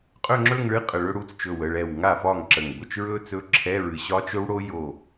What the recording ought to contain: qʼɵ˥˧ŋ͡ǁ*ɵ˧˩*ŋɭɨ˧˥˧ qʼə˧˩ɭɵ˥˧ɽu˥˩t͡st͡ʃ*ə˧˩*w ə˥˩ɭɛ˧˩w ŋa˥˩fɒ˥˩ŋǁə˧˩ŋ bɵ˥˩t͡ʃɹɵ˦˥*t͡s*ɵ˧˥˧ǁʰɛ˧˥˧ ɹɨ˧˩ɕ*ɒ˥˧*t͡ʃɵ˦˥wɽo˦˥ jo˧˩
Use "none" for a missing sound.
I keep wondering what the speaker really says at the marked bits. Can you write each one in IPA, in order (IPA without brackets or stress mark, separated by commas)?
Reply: ɵ˥˧, ɵ˧˩, t͡s, ɒ˦˥